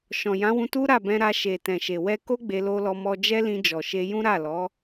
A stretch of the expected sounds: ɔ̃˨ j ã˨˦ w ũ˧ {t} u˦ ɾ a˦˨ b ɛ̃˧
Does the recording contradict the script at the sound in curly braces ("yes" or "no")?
no